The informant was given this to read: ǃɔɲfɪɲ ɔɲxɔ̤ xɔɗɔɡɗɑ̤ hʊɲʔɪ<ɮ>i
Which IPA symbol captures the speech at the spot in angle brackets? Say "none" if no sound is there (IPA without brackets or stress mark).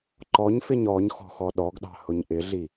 ɮ